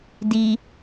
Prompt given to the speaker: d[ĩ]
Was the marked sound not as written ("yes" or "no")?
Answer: yes